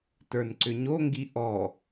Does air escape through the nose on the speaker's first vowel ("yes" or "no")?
no